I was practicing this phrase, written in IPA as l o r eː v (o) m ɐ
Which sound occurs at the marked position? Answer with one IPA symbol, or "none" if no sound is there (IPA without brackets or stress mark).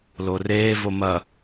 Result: o